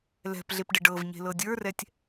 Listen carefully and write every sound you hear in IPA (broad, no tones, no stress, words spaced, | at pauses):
lɛ̤pɮepɖɪ ɖɤvɲe̤lɤ dʲə˞rɛtʲ